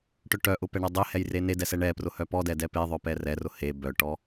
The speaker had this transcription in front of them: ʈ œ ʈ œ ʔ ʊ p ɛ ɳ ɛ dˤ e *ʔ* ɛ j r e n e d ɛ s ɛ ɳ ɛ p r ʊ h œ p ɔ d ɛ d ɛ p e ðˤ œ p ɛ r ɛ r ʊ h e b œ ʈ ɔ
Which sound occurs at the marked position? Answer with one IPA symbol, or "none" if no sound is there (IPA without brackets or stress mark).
h